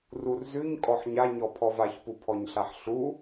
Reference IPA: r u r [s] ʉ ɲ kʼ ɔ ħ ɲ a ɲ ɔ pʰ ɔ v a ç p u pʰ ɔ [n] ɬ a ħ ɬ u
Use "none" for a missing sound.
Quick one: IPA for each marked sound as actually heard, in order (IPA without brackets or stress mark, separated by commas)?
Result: z, ɲ